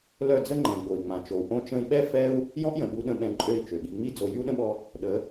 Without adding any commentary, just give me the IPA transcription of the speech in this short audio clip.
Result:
l œ˦˨ d͡z ə˦ ŋ͡ǃ ɛ̃˨ ɡ͡b o˨ i̯ ŋ͡m ã˨ t͡ʃ o˨ u̯ ʔ õ˧ t͡ʃ ə̃˧ i̯ ɓ ɛ˦ f ɛ˦ u̯ | j ɔ̃˦ ʔ j ə̃˨ ɓ u˨˦ ɗ ə̃˧ ɓ ɛ̃˧ ǃʼ ø˦˨ i̯ t͡ʃ ø˨ ɓ i˧ ŋ͡m i˦ d͡z o˧ j y˦ u̯ ɗ ə̃˦ ɓ ɔ˧ | ɗ ə˨˦

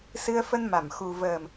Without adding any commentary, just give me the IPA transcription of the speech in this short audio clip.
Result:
s ɨ˧ ə̯ f ə˧ n m a˧˩ m x u˨˩ v əː˨˩ m

